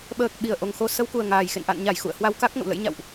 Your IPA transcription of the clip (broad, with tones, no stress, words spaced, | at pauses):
ɓəː˨˩k̚ ɓi˨˩ə̯ʔo˨˩ŋ xo˧ sə˧wku˨˩ə̯ ŋaː˨˩jxḛ˧˨n ʔa̰˧˨nɲa˧˩j xṵ˧˨ə̯hwa˧wka˦˥k̚ ŋə̰˧˨w lə̰˧˥jɲa̰˧˨wʔ